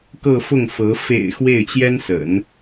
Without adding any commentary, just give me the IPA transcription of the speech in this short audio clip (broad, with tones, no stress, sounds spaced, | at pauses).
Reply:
k ɤ˥˧ f ʊ˥˩ ŋ f ɤ˧˥ f ḛ˨˩ ɪ̯ x w e˥˩ ɪ̯ t͡ɕ j ɛ˥ n s ə̰˨˩˦ n